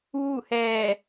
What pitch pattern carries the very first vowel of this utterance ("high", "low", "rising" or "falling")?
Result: falling